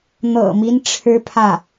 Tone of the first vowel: low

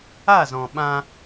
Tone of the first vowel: falling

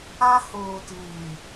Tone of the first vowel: high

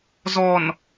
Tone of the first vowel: low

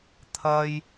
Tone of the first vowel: high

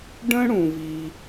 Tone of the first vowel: high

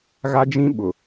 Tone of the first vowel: high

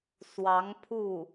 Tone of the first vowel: rising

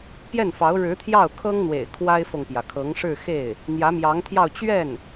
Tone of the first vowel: falling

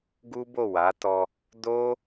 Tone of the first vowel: high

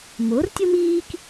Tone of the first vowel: rising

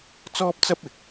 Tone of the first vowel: high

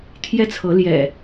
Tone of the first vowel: high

